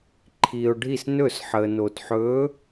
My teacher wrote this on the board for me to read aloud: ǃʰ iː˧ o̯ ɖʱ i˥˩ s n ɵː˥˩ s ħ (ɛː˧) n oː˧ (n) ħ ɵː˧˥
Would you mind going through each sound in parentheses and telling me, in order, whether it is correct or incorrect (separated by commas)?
incorrect, incorrect